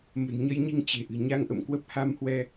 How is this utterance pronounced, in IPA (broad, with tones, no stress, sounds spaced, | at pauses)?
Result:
m ə̤˨˩ n ɲ ə˧ j ɲ i˧ ŋ t͡ɕ e̤˨˩ ʔ ɨ̤˨˩ ɲ a˧ ŋ ʔ ə̰˧˨ m k w ə˦˥ p̚ h a˧ m h w ɛ˧